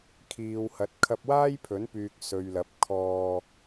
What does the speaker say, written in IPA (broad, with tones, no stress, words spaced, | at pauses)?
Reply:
kʰiː˨whɐ˨˥t̚ kʰɐ˧p̚waː˥jpʰɵ˨˥npyː˨k̚ sɵ˨ɥlɐ˨˥p̚ kʰɔː˧